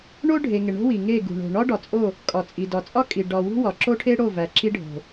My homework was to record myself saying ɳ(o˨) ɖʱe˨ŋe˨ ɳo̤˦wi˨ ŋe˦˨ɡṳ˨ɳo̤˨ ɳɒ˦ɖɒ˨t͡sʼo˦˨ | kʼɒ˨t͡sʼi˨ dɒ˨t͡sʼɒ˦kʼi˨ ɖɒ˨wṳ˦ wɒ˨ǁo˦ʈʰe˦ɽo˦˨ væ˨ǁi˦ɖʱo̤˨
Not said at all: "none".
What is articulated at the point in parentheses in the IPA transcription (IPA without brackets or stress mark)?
o˦